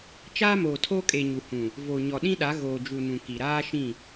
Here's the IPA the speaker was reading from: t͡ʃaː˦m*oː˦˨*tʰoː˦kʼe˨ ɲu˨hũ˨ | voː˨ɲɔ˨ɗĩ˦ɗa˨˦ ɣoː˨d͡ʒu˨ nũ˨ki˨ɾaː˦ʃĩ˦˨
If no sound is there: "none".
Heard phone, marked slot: oː˨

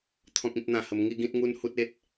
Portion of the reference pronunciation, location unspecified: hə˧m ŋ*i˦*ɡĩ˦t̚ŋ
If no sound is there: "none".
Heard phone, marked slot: i˦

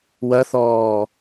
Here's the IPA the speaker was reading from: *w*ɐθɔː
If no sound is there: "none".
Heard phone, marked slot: w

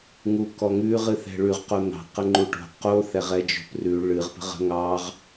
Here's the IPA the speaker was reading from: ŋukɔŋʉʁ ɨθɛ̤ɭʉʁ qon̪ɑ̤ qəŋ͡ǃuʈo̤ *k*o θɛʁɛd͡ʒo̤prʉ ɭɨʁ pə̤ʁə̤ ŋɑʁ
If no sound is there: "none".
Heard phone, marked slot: q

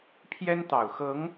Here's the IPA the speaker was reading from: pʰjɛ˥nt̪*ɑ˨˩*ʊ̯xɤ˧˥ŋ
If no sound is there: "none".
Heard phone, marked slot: ɑ˨˩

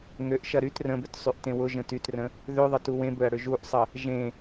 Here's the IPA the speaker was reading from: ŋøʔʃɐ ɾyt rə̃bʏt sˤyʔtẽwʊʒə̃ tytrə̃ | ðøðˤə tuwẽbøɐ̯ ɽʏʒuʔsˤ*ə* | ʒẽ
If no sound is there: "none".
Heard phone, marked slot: ə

